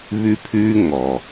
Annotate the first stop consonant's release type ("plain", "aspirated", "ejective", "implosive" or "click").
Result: aspirated